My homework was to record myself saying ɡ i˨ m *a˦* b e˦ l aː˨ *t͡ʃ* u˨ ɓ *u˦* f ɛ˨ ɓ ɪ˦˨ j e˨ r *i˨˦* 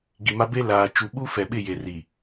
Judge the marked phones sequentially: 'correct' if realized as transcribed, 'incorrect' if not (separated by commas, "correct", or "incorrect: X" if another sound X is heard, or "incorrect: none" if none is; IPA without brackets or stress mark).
correct, correct, correct, incorrect: i˨